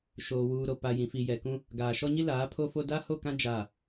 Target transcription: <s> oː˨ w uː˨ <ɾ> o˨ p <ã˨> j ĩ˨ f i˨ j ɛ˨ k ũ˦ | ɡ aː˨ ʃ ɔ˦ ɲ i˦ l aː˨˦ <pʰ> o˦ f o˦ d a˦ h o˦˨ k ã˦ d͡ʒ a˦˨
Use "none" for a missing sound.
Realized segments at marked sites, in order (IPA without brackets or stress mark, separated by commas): ʃ, ɾ, a˨, pʰ